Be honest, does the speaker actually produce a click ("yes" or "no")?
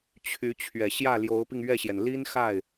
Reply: no